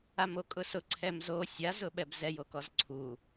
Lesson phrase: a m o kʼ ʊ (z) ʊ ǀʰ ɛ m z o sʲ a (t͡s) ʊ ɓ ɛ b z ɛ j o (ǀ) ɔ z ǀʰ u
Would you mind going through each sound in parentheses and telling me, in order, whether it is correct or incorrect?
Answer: incorrect, incorrect, incorrect

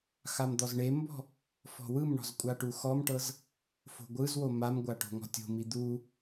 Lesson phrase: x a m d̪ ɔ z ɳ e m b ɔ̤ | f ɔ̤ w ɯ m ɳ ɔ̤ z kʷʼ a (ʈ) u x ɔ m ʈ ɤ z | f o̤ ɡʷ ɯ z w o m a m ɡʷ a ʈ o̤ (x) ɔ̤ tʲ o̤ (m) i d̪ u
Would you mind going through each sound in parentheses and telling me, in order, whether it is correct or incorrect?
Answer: correct, incorrect, correct

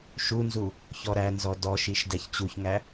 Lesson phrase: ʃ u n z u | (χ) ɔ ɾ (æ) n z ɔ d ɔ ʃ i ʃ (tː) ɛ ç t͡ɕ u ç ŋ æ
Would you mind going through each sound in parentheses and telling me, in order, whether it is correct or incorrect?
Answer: incorrect, correct, incorrect

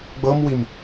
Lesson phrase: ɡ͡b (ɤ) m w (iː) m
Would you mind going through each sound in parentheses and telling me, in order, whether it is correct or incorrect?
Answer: correct, incorrect

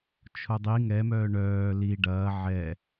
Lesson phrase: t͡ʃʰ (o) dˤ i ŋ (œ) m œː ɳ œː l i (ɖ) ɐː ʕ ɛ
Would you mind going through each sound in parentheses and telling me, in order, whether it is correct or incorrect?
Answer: correct, incorrect, correct

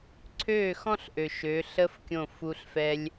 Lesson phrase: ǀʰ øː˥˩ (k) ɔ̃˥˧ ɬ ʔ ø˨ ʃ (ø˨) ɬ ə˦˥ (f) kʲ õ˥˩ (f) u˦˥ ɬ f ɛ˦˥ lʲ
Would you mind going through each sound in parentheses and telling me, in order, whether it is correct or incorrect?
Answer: incorrect, incorrect, correct, correct

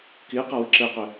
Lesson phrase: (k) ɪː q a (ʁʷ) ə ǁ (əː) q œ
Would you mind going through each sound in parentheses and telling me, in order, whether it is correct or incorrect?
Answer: correct, incorrect, correct

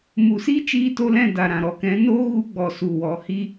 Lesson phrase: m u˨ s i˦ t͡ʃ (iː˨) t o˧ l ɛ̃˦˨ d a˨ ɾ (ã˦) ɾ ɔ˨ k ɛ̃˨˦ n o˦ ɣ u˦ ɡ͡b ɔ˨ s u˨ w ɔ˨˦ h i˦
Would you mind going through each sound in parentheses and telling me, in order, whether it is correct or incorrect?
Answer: incorrect, incorrect

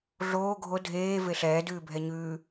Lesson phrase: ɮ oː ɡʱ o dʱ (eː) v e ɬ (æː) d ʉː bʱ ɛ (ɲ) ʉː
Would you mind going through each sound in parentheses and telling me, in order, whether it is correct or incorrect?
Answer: correct, incorrect, correct

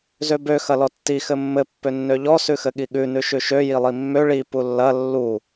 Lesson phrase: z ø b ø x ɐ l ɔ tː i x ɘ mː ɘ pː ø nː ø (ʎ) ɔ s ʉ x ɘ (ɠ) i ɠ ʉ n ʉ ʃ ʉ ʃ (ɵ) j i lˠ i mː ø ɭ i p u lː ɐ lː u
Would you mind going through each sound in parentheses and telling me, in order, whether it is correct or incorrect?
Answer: correct, correct, incorrect

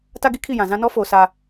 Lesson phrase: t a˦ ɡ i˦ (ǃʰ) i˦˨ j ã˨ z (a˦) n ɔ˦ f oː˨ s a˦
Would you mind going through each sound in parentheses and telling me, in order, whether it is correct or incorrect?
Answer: incorrect, incorrect

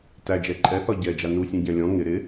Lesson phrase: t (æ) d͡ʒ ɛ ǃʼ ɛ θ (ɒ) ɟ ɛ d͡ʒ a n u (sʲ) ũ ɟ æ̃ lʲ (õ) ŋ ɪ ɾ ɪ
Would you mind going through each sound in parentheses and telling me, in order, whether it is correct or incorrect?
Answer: correct, correct, correct, incorrect

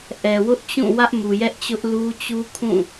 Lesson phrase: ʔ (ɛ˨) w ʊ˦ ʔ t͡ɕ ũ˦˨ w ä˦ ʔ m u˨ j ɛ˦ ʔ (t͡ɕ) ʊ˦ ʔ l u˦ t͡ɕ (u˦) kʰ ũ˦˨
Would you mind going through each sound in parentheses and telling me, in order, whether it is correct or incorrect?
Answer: correct, correct, correct

